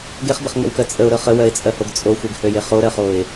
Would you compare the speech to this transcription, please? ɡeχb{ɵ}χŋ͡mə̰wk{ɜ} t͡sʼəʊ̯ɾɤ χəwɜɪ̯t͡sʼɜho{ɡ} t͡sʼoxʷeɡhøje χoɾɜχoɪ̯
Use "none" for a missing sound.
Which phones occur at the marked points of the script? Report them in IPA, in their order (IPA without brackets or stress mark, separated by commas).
ə, ɜ, ɡ